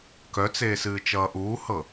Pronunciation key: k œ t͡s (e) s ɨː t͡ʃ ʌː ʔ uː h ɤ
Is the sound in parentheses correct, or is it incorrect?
incorrect